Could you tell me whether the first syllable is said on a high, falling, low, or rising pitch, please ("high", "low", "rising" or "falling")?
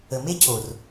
low